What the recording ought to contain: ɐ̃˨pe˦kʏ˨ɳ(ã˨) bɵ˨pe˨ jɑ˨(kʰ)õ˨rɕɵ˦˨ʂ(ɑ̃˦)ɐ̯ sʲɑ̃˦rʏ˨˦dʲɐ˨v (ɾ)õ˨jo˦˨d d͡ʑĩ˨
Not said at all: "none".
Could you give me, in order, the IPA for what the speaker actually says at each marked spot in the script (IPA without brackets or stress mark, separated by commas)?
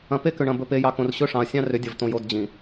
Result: ɐ̃˨, k, ɑ̃˨, t̪